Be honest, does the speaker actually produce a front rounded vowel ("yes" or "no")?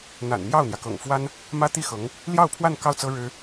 no